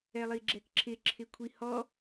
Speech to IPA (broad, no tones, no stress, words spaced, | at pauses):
ɛlˠiɡ͡ǁɛkǁʰɪ ǁʰɪkʷʰihɔ